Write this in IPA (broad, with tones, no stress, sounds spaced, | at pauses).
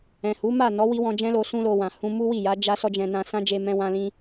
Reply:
ɛ̃˨ h u˨˦ m a˦˨ n ɔ˨˦ w i˦ w ɔ̃˧ d͡ʒ ɛ̃˦ l o˧ s ũ˦ l o˧ w ã˨ h ũ˧ m u˦ w i˦˨ j a˨˦ d͡ʒ a˦ s ɔ˦ d͡ʒ ɛ̃˧ n ã˧ s ã˦ d͡ʒ e˧ m ɛ̃˧ w ã˧ l ĩ˧